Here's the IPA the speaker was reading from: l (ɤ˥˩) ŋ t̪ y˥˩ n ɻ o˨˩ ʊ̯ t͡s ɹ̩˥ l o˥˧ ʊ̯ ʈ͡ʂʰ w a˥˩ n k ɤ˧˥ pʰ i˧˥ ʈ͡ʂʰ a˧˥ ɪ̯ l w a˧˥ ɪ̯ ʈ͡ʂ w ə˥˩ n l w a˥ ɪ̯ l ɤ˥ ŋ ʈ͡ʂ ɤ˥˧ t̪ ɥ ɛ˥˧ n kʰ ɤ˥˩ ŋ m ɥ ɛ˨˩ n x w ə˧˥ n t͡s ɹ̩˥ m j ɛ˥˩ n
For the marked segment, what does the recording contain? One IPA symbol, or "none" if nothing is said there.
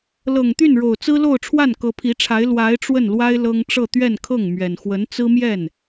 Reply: ɤ˨˩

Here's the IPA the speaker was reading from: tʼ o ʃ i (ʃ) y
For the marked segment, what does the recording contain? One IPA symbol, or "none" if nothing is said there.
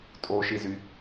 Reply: z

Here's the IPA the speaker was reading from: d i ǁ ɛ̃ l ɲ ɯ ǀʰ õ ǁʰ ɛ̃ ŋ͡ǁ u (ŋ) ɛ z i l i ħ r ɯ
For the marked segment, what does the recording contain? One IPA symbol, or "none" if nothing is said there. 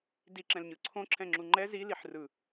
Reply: ŋ͡ǃ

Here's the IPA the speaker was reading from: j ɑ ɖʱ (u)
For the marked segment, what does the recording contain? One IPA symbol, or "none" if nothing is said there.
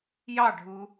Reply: u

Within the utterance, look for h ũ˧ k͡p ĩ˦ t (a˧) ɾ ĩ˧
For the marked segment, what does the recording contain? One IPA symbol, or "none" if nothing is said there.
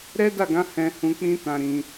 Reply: ã˧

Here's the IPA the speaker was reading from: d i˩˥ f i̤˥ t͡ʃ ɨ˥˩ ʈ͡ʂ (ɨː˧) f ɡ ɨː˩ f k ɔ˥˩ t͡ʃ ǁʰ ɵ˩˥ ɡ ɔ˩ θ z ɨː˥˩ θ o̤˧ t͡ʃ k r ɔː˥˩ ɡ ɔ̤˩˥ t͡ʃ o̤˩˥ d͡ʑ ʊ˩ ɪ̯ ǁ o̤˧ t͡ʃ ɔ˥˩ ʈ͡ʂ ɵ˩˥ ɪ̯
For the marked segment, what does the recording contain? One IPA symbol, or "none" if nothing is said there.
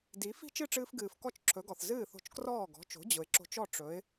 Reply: ɨː˧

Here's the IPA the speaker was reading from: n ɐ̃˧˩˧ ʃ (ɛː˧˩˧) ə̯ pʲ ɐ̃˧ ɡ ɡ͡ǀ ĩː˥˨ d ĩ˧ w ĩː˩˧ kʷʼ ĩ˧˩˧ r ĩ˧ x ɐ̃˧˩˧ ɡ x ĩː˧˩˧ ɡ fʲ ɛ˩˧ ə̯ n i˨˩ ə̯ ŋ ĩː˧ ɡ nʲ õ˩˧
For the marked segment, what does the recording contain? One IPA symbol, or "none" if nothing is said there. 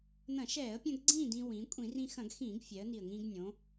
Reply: ɛː˧˩˧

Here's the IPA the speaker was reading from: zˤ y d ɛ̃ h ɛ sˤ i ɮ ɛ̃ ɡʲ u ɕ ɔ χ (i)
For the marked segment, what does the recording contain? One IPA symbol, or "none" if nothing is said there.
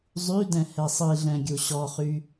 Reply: y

